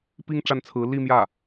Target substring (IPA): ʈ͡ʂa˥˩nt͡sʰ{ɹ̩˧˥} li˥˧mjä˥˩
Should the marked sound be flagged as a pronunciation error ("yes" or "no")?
no